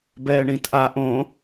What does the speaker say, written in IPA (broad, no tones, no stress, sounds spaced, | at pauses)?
b ɛː ɳ ĩː t ʔ a ʔ õ